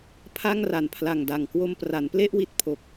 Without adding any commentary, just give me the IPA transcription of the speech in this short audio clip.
pʰ a˥˩ ŋ r a˨˩ n pʰ l a˨˩ ŋ d a˨˩ ŋ k w o˧ m p r a˩˦ n p l e˥˩ ʔ w i˦˥ t̚ pʰ o˨˩ k̚

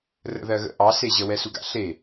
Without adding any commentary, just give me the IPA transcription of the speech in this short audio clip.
r ə̰ ð ɜ ɣ ə̰ ʔ ɑ s e ʑ ə w ɛ s u ɡ a̰ ɬ e

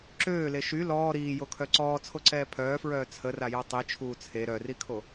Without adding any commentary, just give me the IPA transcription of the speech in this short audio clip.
ǁ øː l e ʃ y l ɔː ɾ iː j o kʰ œ ǀ ɔː t͡sʰ o ǀ ɛː pʰ œː f ɹ œː t͡sʰ ə r a j a tˤ i t͡ʃʰ uː t͡sʰ e ɾ œ r i kʰ o

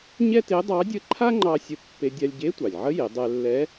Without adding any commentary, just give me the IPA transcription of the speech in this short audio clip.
ɲ ɛ˥ t e˧˥ dˤ ɑ˧˥ dʲ ə˥ ǃʰ a˥ ŋ͡ǃ ɑ˧ sʲ ə˧˥ pː e˧ dʲ a˧ lʲ ɟ e˧˥ tʷ ɑ˩ lʲ ʕ ə˧˥ j e˩˧ dˤ ɛ˧ lː ɛ˧˥

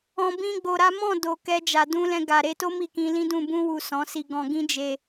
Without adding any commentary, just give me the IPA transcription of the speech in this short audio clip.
ɔ̃˨ b ĩ˧ ɡ͡b o˨ ɾ a˨˦ m ɔ̃˦˨ d o˨ k ɛ˧ d͡ʒ a˨ d ũ˧ l ɛ̃˧ ɡ a˨ ɾ e˨˦ t o˦ m i˦˨ k ĩ˧ l ĩ˦ d ũ˦˨ b ũ˧ w u˨ s ɔ̃˨˦ s i˧ ɡ ɔ̃˧ ɡ ĩ˦ d͡ʒ e˧

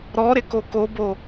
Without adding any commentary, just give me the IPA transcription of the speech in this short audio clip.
ɾ ɔ ɾ ɪ k o k o b o

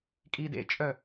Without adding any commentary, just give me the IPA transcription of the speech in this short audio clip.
kʼ i d ḛ t͡ʃʼ œ

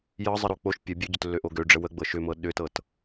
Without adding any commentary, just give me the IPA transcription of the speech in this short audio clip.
j ɤ zˤ ə ɾ o k͡p o ʃ pʲ ə bʲ ø ɟ ʏ t lː ø ʔ o ɡ ø ɖ͡ʐ ə w ə ɡ͡b ɤ ʃ ʏ m ɤ ɗ ʏ t ɤ t

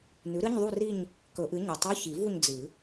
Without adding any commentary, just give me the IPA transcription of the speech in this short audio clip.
n ʉ˩˥ ɾ ɨ˧˥˧ ɲ ðˤ u˥˧ r i˥˧ ɲ | k ɵ˨˩˦ ʔ ɨ˩˥ ɲ ɨ˩ tˤ u˧˥˧ ç i˨˩˦ v u˥˧ ɲ d͡z ɨ˨˩˦

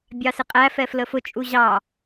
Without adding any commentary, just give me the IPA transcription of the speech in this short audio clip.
bʲ ɑ s ɪ qʼ æ f ɛ f l ə f ʊ t͡ʃʼ u ʑ ɑ

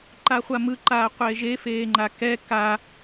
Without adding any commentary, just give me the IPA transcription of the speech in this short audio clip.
ǃ a χʷ a m ɯ ǃ aː qʷ eː ʒ e f eː ŋ͡ǃ a k ɛ k a

